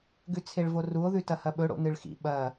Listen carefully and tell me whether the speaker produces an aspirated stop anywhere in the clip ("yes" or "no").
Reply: yes